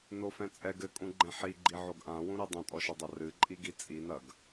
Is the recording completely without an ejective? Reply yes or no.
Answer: no